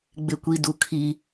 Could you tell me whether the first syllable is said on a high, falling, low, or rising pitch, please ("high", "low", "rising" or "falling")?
high